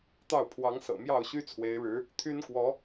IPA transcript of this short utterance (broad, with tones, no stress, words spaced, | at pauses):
t̪ɑ˥˩ʊ̯pʰwɑ˧˥ŋ sɤ̰˨˩mjɑ˥˩ʊ̯ɕy˥ t͡sʰwe˧˥ɪ̯ɻɻ̩˧˥ | t̪ʰy˥nkwɔ˧˥